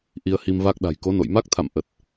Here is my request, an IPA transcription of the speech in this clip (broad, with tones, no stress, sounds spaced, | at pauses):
ʔ i˧ ə̯ h i˧ m v a˦˥ k̚ ɗ a̤˨˩ j k o˨˦ n o̰˧˨ j m a˦˥ k̚ t̪ʰ a̰˧˨ m ʔ ə˨˩ t̚